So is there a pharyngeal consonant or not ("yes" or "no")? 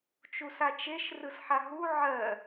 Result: yes